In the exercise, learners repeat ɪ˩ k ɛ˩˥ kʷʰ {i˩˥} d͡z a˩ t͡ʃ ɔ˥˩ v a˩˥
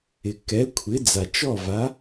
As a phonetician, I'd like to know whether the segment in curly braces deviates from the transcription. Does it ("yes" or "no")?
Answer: yes